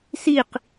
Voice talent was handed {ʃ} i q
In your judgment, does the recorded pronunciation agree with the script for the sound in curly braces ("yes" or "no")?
no